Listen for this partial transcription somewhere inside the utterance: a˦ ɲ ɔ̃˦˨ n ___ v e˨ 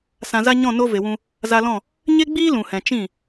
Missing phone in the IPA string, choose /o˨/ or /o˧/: o˧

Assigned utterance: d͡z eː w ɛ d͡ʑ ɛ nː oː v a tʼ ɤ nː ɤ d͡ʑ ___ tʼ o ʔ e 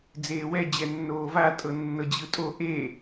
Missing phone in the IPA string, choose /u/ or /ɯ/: ɯ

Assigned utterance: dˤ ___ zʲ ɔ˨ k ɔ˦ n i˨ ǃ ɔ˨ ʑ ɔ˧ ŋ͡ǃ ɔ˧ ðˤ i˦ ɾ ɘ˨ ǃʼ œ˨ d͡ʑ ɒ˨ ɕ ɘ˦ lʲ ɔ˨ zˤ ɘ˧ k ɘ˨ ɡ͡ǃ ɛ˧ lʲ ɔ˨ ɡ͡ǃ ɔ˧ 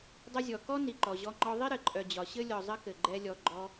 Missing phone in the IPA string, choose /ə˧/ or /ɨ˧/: ə˧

